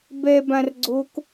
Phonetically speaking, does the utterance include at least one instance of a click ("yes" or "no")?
yes